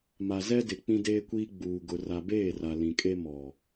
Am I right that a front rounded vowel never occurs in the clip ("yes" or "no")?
yes